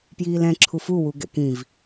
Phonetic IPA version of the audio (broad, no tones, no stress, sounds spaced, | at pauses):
p j iː l ɛ̃ ǁʰ u f u w u ɡ ɛ̰ k ĩ v